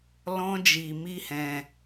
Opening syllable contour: high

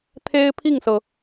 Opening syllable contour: high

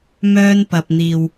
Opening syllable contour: high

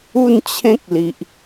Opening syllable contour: falling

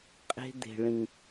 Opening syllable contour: high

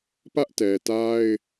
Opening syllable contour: high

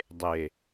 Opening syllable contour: low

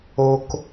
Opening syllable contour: low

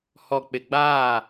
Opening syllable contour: low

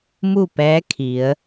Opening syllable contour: falling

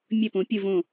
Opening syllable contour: falling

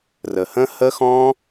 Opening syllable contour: low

